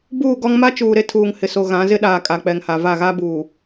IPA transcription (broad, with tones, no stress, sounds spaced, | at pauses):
b uː˦˨ ɡ ɔ˦ ŋ m a˦ t͡ʃ uː˨ ɾ e˦ tʰ uː˨ ŋ h ɪ˨ s o˨ ɣ ã˨˦ z ɪ˦ ɗ aː˨ kʼ a˨ k͡p ɛ˨ ŋ h a˨ v a˦˨ ɣ a˦ b uː˨